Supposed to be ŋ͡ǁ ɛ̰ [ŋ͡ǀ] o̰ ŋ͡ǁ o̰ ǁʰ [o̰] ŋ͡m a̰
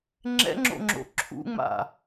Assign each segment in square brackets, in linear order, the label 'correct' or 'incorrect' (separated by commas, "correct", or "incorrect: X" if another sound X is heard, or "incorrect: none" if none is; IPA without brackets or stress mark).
incorrect: ŋ͡ǁ, incorrect: ṵ